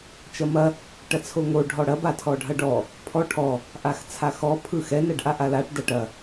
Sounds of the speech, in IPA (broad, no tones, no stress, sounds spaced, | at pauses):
t͡ʃ ɐ m ɐ | ʈ ɐ t͡sʰ o ŋ o ɖʱ ɔ ɽ ɐ b a tʰ ɔ ɖʱ ɐ ɖ ɔ | pʰ ɔ ʈʰ ɔ | ʔ a x t͡sʰ a x ɔ pʰ ɯ x ɛ n ɛ ɖ ʔ a ʔ a l a ʈ d ɐ ʈ ɐ